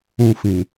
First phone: ũ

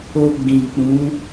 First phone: o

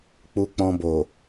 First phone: k͡p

